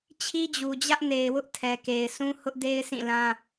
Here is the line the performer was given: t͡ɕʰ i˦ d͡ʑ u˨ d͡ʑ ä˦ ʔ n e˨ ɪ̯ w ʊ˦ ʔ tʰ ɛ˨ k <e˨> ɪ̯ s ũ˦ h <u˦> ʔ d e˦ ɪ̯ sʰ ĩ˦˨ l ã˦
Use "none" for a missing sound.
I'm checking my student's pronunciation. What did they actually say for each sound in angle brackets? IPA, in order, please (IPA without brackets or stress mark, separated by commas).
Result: e˨, ʊ˦